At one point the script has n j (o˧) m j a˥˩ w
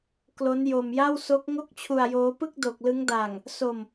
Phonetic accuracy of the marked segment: correct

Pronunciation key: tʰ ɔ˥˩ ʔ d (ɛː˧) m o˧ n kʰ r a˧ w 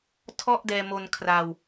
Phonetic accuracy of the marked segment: correct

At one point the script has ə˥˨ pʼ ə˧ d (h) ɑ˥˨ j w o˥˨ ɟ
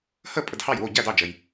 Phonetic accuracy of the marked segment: correct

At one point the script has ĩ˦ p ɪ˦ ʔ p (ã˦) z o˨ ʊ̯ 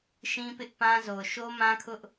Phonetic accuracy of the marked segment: correct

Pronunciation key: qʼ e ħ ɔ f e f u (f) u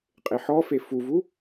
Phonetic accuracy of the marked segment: incorrect: v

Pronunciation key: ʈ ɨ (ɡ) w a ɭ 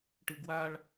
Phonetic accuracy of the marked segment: correct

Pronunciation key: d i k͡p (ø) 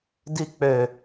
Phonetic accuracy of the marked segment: correct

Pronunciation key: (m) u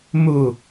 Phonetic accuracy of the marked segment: correct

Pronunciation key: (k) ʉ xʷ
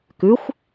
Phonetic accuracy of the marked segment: correct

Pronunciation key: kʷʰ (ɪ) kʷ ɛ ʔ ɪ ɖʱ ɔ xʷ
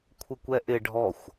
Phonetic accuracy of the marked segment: correct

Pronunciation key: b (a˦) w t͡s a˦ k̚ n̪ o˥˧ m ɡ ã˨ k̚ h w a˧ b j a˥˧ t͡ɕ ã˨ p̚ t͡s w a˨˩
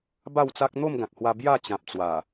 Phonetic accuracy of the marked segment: incorrect: a˥˧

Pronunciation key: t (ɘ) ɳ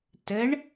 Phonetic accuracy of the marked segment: correct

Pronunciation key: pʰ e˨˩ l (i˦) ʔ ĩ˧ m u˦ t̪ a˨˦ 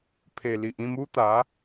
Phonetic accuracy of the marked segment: incorrect: i˨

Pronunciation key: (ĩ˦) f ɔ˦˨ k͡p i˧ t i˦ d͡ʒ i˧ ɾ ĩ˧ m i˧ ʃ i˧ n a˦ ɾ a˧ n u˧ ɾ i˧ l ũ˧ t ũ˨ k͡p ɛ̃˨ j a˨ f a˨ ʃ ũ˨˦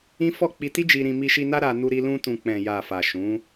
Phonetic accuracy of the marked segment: correct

